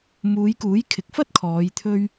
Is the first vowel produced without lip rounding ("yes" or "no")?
no